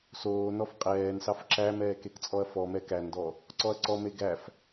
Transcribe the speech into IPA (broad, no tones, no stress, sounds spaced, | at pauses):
s oː n ɔ f qʼ ɛː n s ɑ f ǁ æ m ɛː k e k t͡sʼ ɔ ɐ̯ f ɔ m ɛ k æ n d ɔ | ǀ ɔ ɐ̯ ǀ ɔ m e ɡ æ f